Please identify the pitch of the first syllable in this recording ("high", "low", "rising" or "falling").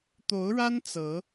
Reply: rising